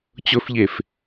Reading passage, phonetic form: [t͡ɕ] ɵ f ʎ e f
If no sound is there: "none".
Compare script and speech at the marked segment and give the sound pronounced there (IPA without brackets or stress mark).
t͡ɕ